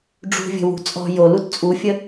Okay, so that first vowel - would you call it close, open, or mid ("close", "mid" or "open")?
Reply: close